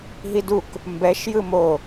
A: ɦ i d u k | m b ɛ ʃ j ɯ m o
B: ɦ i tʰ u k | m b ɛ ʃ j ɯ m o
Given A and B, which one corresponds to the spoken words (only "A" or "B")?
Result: A